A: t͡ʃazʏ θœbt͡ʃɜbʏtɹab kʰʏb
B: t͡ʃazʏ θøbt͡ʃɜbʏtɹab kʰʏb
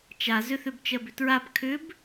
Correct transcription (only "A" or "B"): B